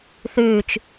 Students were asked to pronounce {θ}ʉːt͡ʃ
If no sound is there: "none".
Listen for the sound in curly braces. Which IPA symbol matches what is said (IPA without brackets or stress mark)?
θ